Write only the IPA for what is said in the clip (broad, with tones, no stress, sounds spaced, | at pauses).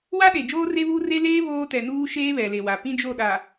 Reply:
w a˦ ɗ e˨ d͡ʒ oː˦ r e˦ β uː˦ r e˦ l eː˦ β oː˦ t ɛ˨ n uː˦ ʃ eː˦ β ɛ˨ l e˨ w a˨ p ĩ˦ d͡ʒ o˦˨ ɗ a˨